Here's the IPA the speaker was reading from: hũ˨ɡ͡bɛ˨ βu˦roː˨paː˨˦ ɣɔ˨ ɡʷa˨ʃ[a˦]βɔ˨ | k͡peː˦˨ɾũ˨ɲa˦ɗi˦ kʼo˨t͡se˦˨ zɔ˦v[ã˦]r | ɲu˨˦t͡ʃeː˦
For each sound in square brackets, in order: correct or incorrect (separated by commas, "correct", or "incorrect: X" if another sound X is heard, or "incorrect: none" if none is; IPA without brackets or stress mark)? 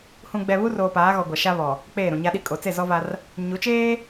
correct, incorrect: a˦